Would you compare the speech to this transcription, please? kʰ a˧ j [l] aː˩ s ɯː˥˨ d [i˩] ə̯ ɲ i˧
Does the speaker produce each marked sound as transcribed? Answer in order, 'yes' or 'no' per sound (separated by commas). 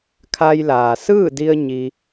yes, no